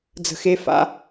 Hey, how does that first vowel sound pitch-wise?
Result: low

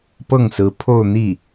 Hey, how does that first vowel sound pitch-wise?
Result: falling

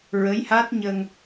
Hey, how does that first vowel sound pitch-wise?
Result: rising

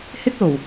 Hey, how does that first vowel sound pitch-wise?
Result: high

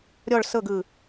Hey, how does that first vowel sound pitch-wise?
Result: falling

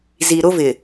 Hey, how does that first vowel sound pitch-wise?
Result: low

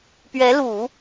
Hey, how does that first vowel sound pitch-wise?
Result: rising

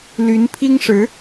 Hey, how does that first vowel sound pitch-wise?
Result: rising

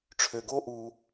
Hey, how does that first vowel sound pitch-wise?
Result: low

